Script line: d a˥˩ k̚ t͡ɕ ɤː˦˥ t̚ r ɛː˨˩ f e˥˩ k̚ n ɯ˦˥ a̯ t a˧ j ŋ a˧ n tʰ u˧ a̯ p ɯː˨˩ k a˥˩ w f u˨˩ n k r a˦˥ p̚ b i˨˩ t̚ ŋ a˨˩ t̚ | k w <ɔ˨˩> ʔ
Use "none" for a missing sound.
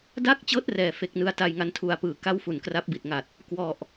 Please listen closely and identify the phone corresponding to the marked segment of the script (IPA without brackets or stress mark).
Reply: ɔ˨˩